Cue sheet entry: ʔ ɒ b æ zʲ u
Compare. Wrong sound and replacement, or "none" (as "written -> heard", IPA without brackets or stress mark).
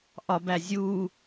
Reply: none